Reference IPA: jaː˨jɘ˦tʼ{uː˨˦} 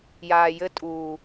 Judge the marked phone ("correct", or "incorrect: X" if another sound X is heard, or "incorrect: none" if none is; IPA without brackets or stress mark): incorrect: uː˨